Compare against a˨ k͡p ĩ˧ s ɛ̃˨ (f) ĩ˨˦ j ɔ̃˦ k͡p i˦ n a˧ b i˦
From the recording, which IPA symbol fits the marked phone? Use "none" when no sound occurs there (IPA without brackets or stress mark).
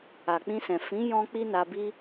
f